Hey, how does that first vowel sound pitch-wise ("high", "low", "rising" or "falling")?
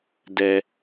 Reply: low